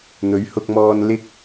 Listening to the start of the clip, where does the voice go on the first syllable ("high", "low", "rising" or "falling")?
rising